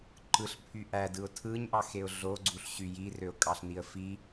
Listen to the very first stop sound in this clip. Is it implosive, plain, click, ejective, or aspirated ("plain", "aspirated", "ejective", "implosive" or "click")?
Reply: click